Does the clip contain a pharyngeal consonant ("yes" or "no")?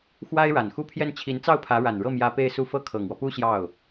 no